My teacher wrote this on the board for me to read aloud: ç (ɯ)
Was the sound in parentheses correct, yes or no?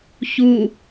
no